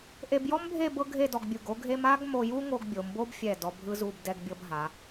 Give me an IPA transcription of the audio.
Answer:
ʔ e˧ b j ɔ˥ m bʱ e˥˧ b ɤ˥ ɡʱ e˥˧ d ɔ˧ ɡ bʲ u˧˩ ɡ o˥ ɡʱ e˥ m a˥ ɡ m o˧ j u˥ ŋ o˧ ɡ bʲ o˩˧ m b o˥ b fʲ ɛ˧˩ d ɔ˧ bʱ ɯ˥ z u˥˧ b d ɛ˥ ɡ bʲ ɤ˥ b ɦ a˩˧

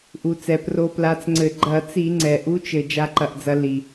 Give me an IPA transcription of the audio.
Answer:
ʔ u˩ t͡s ɛ˩ p r o˨˦ p l a˨˦ t͡s ŋ͡ǀ ɘ˧˩˧ ɡ͡ǃ ɐ˧˩˧ t͡s i˧˩˧ ŋ͡ǀ ɛ˩ ʔ u˨˦ t͡ʃ ɘ˩ d͡ʒ a˨˦ ǃ ɐ˩ ʔ d͡z ɐ˨˦ l i˩

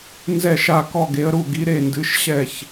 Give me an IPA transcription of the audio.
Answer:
n z ɛ˥˧ ʃ a˥˧ k ɔ˥˧ ɡ e˧˥ ə̯ ɾ u˥˧ ɡ i˧˥ ɾ e˥˧ n d ɨ˧˥ ʃ ɕ ɛ˥˧ ç

